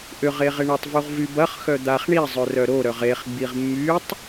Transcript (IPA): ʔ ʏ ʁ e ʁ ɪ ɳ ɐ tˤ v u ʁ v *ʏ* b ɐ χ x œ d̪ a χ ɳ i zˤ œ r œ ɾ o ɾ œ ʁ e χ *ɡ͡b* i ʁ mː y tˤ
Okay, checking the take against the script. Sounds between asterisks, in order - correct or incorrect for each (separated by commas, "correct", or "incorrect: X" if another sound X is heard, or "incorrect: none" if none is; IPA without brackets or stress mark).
incorrect: y, correct